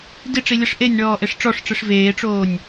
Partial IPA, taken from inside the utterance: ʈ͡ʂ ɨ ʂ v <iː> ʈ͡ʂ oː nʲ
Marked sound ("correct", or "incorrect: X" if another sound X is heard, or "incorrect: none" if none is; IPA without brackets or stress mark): incorrect: eː